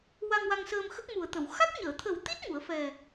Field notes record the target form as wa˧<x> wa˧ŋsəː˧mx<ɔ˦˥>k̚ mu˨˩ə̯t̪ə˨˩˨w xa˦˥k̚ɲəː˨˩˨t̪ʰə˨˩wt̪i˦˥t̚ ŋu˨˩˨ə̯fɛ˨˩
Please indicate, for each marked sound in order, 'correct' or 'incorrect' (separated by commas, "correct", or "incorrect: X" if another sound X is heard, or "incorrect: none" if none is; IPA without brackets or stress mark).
incorrect: ŋ, incorrect: ə˦˥